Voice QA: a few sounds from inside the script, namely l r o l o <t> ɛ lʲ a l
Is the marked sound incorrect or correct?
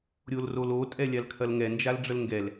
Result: incorrect